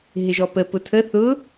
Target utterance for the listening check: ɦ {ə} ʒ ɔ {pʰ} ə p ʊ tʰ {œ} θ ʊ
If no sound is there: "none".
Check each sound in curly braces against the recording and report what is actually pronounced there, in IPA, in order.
ɪ, p, ə

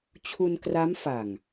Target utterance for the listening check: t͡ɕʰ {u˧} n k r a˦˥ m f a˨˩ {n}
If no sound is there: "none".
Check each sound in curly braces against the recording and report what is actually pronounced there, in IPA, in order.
u˧, ŋ

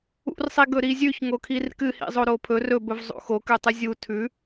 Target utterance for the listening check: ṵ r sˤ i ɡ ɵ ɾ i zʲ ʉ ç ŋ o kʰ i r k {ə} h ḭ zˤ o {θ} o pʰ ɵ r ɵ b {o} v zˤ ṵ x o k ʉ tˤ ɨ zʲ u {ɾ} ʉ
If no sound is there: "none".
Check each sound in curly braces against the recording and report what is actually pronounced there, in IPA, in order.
ɨ, ɾ, ɵ, tʰ

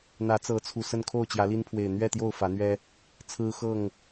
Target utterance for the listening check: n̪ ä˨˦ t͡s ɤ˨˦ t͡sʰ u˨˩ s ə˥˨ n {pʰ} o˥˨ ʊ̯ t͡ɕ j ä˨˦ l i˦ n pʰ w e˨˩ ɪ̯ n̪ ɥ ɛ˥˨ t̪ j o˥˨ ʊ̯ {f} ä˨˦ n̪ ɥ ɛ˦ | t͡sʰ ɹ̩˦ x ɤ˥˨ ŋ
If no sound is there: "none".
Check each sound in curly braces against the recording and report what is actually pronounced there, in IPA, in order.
kʰ, f

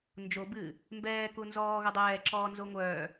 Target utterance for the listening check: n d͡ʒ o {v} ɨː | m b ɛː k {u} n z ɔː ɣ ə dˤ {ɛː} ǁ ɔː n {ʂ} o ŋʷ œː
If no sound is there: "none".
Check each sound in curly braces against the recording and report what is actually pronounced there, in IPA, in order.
b, u, ɛː, z

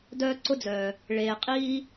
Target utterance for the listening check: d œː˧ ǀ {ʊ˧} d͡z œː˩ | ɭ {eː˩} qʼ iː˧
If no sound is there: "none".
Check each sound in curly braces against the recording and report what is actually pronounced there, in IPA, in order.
ʊ˧, eː˩

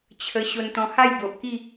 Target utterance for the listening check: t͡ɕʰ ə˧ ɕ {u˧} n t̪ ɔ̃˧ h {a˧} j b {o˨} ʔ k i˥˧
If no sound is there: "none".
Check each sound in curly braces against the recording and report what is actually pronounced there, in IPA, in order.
o˧, a˥˧, o˨

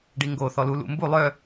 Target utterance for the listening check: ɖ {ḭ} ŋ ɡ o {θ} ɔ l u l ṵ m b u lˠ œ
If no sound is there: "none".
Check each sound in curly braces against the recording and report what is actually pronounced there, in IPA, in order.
i, θ

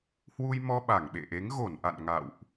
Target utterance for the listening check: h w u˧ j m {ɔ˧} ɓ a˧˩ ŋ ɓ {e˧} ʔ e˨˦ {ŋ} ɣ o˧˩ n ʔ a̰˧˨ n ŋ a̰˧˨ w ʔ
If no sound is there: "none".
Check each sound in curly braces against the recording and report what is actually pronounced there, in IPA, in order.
ɔ˧, ḛ˧˨, ŋ

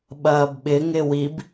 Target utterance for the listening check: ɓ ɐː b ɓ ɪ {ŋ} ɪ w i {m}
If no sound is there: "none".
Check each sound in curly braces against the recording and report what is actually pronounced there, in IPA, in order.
ŋ, b

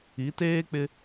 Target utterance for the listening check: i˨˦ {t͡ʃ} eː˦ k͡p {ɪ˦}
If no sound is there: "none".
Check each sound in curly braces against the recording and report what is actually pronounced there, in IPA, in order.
t, ɪ˦

